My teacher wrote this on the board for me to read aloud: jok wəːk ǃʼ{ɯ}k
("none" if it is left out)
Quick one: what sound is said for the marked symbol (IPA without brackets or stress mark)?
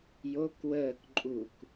u